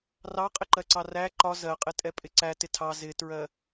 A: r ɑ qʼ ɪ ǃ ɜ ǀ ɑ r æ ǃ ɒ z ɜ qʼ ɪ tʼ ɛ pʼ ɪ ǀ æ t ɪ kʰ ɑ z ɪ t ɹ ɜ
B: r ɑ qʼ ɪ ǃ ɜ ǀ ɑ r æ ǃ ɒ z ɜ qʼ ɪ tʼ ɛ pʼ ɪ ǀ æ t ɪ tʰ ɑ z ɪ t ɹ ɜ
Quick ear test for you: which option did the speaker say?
B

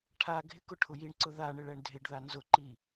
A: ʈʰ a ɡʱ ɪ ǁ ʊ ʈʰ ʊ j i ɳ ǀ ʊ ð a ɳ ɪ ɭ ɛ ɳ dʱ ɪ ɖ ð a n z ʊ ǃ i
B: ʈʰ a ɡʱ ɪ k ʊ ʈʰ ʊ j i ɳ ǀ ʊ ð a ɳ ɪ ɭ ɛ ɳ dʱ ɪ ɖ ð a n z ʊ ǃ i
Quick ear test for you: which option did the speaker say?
B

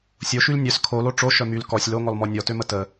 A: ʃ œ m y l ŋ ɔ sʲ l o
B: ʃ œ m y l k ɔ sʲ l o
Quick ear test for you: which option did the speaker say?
B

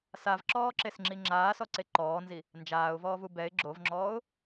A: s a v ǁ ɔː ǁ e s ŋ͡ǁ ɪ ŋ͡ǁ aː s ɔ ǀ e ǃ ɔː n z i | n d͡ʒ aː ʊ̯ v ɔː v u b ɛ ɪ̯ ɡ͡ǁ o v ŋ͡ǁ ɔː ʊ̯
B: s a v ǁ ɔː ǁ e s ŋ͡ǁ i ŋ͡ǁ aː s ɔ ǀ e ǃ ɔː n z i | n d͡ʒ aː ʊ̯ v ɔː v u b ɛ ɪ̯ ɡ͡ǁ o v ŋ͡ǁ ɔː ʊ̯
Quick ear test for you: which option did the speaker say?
B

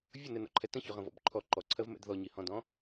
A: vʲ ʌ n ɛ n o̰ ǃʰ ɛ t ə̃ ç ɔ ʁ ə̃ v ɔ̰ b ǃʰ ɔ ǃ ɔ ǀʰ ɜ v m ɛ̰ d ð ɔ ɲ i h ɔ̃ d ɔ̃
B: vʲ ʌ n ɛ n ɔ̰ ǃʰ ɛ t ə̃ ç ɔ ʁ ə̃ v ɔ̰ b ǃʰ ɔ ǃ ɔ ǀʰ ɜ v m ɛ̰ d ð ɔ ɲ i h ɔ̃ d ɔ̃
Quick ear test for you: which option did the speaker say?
B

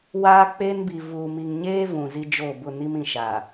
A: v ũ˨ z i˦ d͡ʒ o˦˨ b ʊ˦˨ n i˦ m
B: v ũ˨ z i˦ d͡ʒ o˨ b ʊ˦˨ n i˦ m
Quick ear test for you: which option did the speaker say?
A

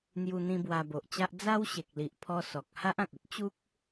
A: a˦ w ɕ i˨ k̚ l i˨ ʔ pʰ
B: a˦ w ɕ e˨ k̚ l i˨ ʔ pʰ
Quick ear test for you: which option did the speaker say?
B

